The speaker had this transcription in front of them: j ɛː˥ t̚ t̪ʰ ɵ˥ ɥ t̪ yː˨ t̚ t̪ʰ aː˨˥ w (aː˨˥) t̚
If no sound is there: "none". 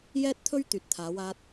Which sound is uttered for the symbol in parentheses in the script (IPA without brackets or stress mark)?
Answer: aː˥